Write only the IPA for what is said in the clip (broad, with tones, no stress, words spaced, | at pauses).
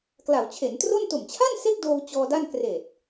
kla˩˦wt͡ɕʰe˩˦ntro˥˩n to˨˩mt͡ɕʰa˥˩n se˥˩k̚doː˧w t͡ɕɔː˧da˥˩n kreː˨˩t̚